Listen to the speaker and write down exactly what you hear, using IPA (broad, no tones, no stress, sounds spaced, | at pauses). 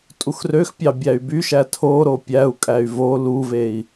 tʼ u x r ø x pʲ ɑ bʲ æ y̯ b y ʃ æ tʰ o ɾ o pʲ æ u̯ kʼ æ y̯ v o l u v e i̯